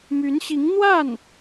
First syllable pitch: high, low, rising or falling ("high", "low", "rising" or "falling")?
rising